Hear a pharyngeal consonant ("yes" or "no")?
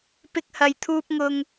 no